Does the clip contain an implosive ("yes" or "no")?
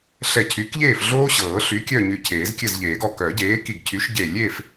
no